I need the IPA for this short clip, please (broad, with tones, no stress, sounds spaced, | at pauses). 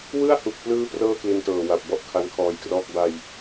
w ɯ˥˩ a̯ h u˨˩ k̚ p l ɯː˦˥ p r ɤː˥˩ k l i˧ n t ɤː˨˩ w a˨˩ p̚ b ɔ˥˩ ʔ kʰ a˧ n kʰ ɔː˧ j k r ɔː˥˩ k̚ b a˧ j